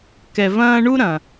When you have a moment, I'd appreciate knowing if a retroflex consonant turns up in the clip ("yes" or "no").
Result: yes